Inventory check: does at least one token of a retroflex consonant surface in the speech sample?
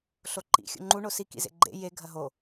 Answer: yes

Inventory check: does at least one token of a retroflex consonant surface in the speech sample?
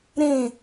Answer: no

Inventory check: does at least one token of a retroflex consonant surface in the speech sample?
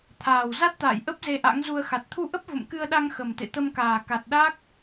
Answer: no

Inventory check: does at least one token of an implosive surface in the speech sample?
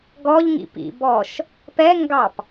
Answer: no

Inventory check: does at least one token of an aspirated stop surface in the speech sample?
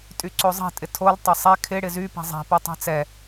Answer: yes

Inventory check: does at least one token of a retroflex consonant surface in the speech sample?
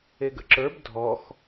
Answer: no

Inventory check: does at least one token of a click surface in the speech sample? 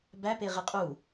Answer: no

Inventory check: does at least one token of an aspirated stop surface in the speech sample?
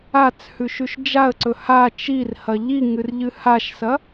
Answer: no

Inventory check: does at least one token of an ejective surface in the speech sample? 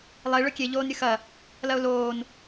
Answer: no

